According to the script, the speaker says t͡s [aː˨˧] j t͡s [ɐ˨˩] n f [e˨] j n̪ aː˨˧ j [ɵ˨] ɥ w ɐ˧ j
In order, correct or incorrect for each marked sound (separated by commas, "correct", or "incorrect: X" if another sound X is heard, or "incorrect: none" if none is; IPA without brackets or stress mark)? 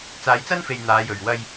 correct, incorrect: ɐ˥, correct, correct